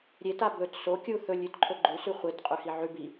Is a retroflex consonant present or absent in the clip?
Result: absent